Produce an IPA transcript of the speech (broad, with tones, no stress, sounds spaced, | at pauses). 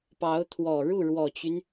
p ɑ˧˥ ʊ̯ t̪ʰ w ɔ˨˩ ɻ u˥˩ ɻ w ɔ˨˩ t͡ɕ y˦ n